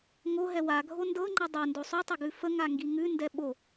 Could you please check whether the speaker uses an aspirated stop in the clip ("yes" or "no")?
no